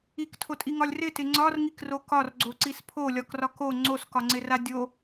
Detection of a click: present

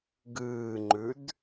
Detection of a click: present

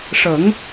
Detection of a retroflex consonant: present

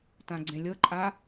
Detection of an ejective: present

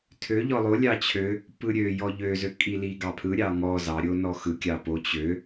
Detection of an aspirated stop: present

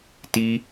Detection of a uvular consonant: absent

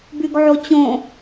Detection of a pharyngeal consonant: present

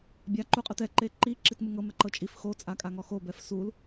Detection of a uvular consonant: present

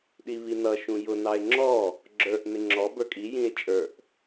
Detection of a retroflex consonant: absent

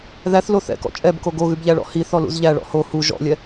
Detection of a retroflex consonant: present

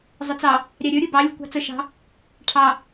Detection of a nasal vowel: absent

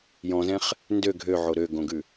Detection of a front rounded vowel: present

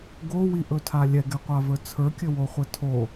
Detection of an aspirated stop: present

